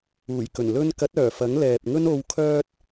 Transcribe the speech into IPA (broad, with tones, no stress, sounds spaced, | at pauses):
uː˨˩ j k ɵ˨˩ n l ɵ˧ n k ɐ˨˥ t̚ œː˨˩ f ɐ˨˥ ŋ l ɛː˨ p̚ ŋ ɵ˥ n o˨˧ w kʰ œː˧ t̚